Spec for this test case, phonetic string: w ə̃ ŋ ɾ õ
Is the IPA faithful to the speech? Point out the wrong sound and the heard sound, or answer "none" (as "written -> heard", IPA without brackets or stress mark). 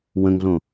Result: ɾ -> ɮ